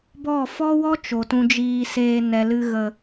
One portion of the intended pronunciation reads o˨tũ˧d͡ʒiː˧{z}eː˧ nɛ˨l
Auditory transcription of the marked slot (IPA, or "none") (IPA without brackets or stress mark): s